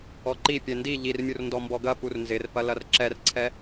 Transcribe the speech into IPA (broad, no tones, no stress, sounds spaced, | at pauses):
ɔ ǃ i pʲ ɛ n d i ʎ i r mʲ u r n d ɔ m b ɔ ɡ ɐ p u r n z ɪ r p ɐ l ɐ r ǁ ɛ r ǀʰ ɛ